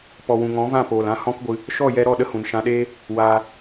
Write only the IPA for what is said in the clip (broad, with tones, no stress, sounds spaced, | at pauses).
p ɔ˨ w ũ˨ ŋ ɔ̃˨˦ v ã˦˨ p oː˨ l ã˧ h ɔ̃˦ k ɡʷ ɨ˧ | ʃ ɔ˦˨ j ɛ˧ ɾ ɔ˦˨ ɗ ə˦ h ũ˨ n ʃ ã˧ ɗ eː˦ | w aː˧